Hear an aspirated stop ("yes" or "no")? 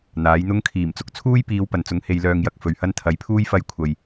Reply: yes